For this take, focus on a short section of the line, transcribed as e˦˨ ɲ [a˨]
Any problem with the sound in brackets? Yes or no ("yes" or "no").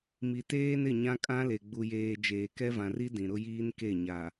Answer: no